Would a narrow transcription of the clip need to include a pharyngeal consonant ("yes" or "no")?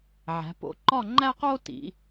yes